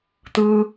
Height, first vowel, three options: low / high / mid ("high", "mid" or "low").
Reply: high